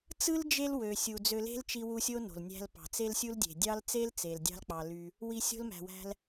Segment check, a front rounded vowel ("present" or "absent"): present